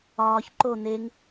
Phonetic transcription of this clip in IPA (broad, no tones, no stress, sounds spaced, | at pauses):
ɒː ç ǃ o n e ŋ